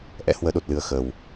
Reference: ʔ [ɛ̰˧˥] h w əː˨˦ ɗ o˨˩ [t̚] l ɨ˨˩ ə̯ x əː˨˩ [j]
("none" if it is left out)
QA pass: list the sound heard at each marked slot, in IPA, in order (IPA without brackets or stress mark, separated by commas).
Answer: ɛ̰˧˥, t̚, w